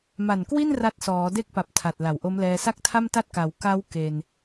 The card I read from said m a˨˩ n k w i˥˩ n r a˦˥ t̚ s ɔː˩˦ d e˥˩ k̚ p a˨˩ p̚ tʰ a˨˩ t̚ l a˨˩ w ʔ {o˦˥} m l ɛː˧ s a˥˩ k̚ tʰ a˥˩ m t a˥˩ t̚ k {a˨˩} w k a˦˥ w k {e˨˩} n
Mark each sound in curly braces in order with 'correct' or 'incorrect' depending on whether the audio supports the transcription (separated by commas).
correct, incorrect, incorrect